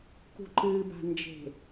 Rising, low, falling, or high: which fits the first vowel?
low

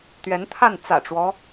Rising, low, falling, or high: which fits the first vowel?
rising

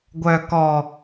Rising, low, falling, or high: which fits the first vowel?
low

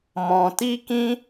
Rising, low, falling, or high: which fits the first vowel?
low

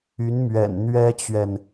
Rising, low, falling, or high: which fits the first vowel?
rising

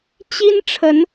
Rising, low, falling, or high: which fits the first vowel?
high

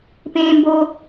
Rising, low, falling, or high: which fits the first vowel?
high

